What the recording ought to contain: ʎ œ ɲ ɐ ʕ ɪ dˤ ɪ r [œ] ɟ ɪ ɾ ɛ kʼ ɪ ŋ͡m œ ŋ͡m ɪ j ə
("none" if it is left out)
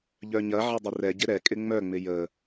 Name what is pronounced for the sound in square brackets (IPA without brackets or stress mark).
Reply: ɛ